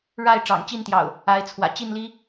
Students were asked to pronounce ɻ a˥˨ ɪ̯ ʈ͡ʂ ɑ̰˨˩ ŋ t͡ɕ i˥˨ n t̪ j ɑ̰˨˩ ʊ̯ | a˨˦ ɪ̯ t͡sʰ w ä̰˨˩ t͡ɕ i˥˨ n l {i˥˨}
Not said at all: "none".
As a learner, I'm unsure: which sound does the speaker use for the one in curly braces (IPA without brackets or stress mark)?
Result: i˦